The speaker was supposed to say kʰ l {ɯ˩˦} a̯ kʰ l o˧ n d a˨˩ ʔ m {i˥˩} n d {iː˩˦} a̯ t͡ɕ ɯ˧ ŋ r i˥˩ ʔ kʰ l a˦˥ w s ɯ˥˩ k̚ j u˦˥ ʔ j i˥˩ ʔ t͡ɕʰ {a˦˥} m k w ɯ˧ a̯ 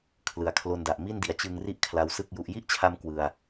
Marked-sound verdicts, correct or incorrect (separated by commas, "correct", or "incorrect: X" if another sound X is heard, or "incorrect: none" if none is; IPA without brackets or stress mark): correct, correct, incorrect: i˩˦, incorrect: a˧